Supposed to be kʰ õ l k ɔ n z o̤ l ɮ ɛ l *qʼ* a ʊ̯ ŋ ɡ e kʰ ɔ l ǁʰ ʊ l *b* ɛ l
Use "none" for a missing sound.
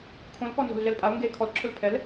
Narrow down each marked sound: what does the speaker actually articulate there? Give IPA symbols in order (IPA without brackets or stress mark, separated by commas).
pʼ, pʰ